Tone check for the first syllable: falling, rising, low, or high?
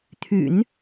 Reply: low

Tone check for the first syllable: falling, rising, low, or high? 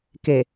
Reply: low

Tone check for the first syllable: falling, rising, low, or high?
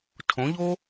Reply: rising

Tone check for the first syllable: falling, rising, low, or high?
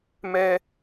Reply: high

